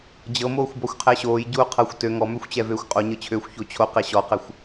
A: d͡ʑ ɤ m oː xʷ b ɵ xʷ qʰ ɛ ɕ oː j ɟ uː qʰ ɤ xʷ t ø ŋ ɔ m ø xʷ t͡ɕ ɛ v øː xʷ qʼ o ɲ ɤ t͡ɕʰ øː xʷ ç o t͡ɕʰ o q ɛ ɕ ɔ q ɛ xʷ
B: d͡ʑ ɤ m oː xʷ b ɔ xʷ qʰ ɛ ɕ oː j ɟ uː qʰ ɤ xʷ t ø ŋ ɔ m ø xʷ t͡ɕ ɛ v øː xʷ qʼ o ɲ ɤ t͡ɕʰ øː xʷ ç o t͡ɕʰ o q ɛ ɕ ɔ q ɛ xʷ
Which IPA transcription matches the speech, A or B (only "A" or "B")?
B